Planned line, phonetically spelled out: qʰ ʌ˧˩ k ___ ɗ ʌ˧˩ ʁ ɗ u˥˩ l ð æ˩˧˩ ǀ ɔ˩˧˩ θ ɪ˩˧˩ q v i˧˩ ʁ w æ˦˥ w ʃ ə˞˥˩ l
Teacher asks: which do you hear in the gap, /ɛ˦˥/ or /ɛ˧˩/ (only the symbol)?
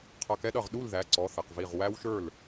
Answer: ɛ˦˥